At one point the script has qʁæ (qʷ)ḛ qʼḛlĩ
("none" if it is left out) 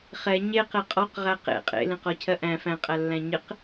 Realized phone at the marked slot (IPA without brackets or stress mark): q